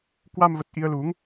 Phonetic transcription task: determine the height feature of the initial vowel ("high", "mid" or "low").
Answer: low